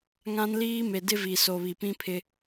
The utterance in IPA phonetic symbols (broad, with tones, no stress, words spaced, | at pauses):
ŋã˦nliː˦ me˨dɪ˦vi˨so˨ βi˨pĩ˦pʰɪ˦